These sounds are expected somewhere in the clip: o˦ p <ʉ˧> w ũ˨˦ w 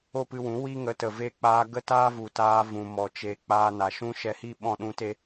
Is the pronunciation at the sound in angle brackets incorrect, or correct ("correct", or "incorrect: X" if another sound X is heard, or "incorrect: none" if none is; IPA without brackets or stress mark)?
incorrect: ɨ˧